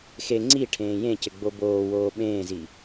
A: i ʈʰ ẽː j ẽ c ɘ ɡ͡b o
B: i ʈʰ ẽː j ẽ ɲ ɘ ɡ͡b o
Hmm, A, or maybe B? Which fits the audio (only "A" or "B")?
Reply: A